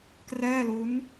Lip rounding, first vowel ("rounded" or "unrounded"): unrounded